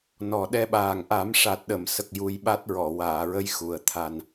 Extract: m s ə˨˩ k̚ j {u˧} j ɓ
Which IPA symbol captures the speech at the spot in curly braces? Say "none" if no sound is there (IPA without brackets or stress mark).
u˧